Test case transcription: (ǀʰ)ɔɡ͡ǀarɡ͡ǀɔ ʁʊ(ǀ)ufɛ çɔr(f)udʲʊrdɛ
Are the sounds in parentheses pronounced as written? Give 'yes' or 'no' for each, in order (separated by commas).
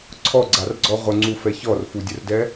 yes, no, yes